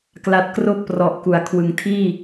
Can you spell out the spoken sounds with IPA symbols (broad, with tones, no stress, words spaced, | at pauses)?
kla˨˩t̚kroː˦˥k̚prɔ˨˩ʔ ku˩˦a̯kʰwɯ˨˩ŋtʰiː˥˩